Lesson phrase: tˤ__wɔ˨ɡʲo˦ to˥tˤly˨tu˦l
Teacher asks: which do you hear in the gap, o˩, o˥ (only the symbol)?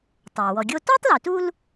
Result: o˩